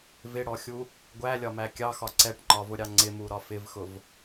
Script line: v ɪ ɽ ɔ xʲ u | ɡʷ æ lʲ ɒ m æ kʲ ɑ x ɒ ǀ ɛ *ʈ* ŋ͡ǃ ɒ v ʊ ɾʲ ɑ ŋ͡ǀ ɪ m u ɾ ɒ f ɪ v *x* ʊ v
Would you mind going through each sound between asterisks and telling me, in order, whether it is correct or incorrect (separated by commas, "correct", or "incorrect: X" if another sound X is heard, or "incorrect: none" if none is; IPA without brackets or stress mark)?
correct, correct